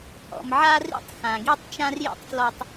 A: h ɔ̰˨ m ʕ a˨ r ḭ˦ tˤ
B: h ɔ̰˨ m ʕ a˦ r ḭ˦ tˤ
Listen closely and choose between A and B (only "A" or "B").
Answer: B